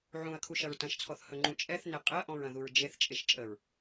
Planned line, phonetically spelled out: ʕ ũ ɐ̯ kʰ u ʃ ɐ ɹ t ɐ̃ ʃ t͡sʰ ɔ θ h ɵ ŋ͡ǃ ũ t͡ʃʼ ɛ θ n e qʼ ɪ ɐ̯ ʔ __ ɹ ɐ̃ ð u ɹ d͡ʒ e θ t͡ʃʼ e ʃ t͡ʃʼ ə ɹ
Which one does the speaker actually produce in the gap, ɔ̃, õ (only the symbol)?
ɔ̃